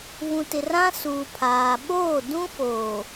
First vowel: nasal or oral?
nasal